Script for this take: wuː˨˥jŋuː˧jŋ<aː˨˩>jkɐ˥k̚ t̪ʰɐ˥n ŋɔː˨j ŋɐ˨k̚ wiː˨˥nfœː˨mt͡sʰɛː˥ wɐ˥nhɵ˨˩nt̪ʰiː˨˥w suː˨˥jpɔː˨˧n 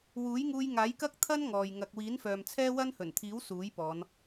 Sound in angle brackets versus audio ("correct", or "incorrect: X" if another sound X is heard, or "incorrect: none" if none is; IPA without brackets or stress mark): incorrect: aː˨˥